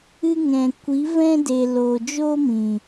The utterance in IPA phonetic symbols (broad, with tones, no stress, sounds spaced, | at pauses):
ɨ˦ ŋ ɛ̃˨ kʷ i˨˦ v ɛ̃˦ d e˨ l o˨ d͡ʒ o˦ m ĩ˨